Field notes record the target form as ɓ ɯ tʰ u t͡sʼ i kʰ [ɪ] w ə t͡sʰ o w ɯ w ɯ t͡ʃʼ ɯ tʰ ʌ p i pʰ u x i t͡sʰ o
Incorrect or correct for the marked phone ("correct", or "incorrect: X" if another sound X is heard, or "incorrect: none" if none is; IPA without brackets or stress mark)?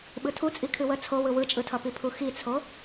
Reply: incorrect: ɨ